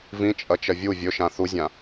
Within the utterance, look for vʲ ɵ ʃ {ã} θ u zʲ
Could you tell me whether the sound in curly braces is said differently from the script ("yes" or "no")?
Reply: no